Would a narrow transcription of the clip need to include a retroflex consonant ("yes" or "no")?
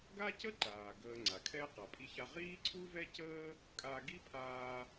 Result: no